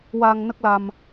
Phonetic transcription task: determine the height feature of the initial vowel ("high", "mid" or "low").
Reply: low